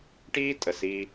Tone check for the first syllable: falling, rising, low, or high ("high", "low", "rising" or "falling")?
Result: high